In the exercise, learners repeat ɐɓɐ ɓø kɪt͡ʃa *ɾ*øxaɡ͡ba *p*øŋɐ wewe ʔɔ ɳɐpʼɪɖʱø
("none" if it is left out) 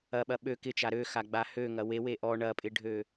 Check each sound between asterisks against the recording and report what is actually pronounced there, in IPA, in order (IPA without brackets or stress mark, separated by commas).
ɾ, h